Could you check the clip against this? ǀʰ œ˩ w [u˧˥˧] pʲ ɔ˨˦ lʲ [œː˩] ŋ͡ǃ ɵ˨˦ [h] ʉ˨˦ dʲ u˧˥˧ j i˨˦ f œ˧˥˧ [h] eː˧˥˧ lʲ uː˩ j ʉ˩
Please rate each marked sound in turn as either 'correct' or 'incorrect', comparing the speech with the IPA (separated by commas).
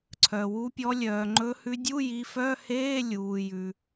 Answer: incorrect, correct, correct, correct